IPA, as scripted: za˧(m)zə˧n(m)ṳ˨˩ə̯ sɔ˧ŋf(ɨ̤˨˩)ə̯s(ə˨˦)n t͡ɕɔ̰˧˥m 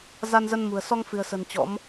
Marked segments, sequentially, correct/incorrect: incorrect: n, correct, correct, incorrect: ə̤˨˩

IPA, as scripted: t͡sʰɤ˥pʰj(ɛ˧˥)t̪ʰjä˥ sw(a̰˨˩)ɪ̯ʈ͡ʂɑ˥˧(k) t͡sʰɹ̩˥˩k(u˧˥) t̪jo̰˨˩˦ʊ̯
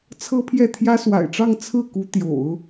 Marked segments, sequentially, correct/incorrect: incorrect: ɛ˥˩, correct, incorrect: ŋ, correct

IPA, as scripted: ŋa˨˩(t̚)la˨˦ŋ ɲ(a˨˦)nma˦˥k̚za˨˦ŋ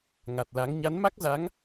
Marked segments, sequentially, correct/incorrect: correct, correct

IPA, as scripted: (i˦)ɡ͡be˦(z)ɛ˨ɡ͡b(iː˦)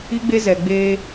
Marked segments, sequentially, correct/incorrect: correct, correct, incorrect: eː˦

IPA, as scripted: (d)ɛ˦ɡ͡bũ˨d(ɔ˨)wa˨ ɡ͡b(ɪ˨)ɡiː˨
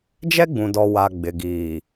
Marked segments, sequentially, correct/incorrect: incorrect: d͡ʒ, correct, correct

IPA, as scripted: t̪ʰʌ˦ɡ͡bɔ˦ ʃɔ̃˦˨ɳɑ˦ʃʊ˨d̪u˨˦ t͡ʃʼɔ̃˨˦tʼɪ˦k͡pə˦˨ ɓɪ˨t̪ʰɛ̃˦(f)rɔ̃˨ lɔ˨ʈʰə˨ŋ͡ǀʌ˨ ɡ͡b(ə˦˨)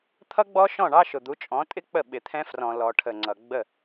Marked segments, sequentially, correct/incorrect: correct, correct

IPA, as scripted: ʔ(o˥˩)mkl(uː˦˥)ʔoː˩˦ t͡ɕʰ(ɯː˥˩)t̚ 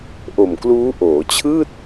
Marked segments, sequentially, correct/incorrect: incorrect: o˨˩, correct, correct

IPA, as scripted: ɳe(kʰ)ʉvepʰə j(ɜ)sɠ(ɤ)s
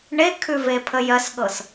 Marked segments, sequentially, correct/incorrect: correct, correct, correct

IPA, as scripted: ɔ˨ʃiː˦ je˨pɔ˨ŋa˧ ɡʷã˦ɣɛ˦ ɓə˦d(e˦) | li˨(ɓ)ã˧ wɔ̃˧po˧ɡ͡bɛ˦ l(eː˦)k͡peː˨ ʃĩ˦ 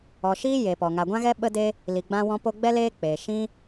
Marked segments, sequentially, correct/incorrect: correct, incorrect: ɡ͡b, correct

